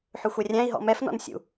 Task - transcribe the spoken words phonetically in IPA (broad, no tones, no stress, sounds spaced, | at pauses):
ħ ʏ xʷ ɛ rʲ æ̃ i̯ ɦ ɔ̰ m ɛ f n ɔ̰ n sʲ ṵ